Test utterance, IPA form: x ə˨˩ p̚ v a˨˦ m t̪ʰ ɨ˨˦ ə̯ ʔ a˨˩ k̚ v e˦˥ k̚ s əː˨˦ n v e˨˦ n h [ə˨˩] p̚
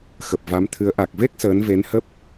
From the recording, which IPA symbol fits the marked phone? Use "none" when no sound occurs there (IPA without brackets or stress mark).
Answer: ə˦˥